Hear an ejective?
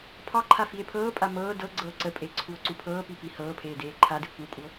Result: yes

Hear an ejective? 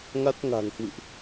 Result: no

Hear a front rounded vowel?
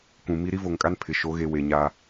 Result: no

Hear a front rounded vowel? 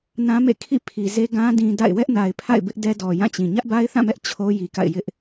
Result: no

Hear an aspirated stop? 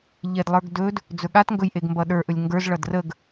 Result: no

